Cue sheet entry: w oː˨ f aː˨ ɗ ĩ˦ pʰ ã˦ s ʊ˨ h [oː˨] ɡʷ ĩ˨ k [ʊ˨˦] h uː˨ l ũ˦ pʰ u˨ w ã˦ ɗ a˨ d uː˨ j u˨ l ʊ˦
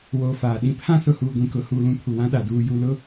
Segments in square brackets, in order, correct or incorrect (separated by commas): incorrect, correct